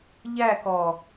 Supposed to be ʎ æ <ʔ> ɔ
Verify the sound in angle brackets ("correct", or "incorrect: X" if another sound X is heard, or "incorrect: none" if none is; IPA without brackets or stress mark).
incorrect: k